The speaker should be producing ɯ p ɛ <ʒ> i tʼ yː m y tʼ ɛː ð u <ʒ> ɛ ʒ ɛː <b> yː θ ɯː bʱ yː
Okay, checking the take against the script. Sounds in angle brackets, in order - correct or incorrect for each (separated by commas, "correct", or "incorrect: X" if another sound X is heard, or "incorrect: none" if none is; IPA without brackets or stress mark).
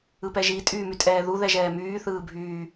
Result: correct, incorrect: ð, incorrect: m